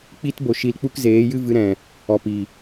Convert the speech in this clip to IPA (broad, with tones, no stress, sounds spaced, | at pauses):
k͡p i˦ t b o˧ ʃ i˧ l k͡p u˦ k z eː˨˦ j ɨ˦ v ɨ˧ ɾ ɛ̃˨ | ɔ˨ p i˨